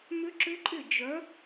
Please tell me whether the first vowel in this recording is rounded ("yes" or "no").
yes